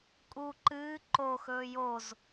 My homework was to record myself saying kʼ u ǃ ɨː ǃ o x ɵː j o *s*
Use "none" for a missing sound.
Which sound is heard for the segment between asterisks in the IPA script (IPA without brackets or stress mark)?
z